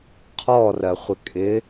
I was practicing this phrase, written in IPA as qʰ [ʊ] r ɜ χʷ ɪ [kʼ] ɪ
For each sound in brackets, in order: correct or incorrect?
incorrect: ɔ, correct

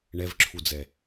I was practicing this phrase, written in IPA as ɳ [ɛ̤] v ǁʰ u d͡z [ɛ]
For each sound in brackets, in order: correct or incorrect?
incorrect: ɛ, correct

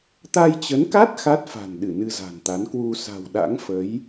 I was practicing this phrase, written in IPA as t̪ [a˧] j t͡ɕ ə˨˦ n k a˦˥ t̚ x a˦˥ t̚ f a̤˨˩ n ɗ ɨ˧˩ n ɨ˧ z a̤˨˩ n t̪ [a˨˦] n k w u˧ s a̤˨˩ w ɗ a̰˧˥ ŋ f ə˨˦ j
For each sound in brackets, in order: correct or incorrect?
correct, correct

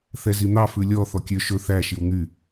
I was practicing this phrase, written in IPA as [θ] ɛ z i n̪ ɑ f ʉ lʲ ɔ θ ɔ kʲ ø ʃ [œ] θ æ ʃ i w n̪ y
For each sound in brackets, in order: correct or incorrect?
correct, incorrect: ɵ

